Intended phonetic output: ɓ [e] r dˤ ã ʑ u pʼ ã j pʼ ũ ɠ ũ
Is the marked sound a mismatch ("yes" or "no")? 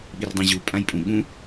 yes